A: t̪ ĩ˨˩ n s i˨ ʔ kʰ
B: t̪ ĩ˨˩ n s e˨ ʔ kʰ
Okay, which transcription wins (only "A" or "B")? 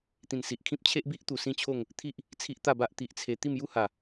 A